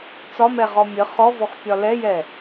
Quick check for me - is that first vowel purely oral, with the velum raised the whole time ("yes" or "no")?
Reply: yes